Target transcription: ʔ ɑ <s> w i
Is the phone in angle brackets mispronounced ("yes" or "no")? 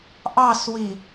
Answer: no